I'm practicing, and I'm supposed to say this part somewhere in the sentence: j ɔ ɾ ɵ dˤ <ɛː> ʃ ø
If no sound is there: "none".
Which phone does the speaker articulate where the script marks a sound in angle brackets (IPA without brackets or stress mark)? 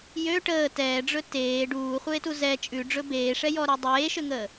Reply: eː